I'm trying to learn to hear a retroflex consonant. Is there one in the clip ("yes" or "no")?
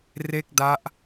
no